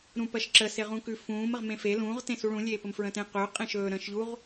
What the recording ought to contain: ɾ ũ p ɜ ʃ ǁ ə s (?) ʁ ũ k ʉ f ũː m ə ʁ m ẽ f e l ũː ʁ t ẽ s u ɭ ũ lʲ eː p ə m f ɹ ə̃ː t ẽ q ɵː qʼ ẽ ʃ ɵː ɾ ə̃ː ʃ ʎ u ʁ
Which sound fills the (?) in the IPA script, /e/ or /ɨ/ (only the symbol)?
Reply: e